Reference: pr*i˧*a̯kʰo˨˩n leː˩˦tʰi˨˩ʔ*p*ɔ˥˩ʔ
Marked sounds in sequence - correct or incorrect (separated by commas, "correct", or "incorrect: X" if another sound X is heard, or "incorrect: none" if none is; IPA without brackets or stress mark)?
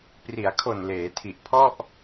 incorrect: i˩˦, incorrect: pʰ